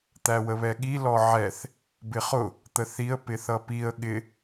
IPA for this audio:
t̪æwəβɛɠi lɔʕɛθ | bɪχʊ | t̪əθiə̯ pɪθʌpiə̯ ɠɪ

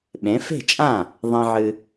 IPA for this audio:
ɓẽ˩˥fe̤˥˩t͡ʃʼã˥˩ | ðˤĩ˧ʕɨ˧

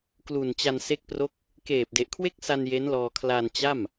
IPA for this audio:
klu˨˩nt͡ɕa˧nse˦˥k̚pro˥˩k̚ | keː˨˩p̚de˨˩ʔkʰwe˥˩k̚sa˧n je˦˥nlɔː˧ kʰla˧nt͡ɕa˥˩m

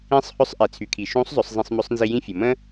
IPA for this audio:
ĩ˧˥sˤhʏ˧˥sˤ ʔe˩˧t͡sʰy˩˧kʰi˩ ʃũ˧˥sˤzˤʏ˩˧sˤ zˤĩ˧sˤmʏ˧˥sˤnzi˧ jĩ˥fʲə˩ mə̃˥

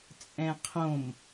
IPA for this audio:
t͡sʼɛ̃qʰõm

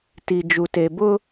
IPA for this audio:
ti˨d͡ʒu˨ te˨bʊ˦

